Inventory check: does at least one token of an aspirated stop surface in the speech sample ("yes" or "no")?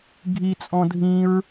no